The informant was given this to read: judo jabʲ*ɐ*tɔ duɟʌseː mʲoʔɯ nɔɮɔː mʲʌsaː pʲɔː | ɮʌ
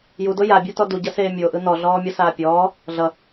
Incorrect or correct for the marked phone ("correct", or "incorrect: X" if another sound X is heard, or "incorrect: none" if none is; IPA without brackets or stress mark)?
incorrect: a